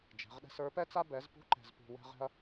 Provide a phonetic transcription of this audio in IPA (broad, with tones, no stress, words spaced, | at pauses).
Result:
d͡ʒɛ̤˨˥ʁɗɛ̤˥s ə˞˨˥pɛ˥t͡sa˥ bɛ˨˥zpṳ˥ ǃɛ̤˥zpṳ˥ wɛ̤˥ʁɛ̤˥ɐ̯